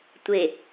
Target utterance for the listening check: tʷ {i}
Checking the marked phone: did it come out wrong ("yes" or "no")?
yes